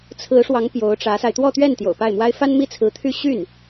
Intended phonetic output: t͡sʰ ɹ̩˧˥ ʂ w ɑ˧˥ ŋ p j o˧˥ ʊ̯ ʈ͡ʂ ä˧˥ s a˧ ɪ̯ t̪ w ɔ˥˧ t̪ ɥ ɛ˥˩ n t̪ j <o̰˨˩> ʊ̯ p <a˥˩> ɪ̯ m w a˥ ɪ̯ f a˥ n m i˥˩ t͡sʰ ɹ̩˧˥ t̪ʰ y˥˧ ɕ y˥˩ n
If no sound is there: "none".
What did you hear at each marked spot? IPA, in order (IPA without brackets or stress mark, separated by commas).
o̰˨˩, a˥˩